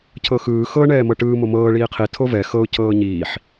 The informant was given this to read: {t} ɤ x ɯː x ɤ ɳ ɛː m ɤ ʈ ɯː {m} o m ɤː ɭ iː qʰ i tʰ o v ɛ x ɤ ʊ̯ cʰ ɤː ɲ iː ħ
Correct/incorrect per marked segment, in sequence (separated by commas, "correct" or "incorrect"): incorrect, correct